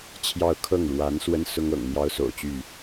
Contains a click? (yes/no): no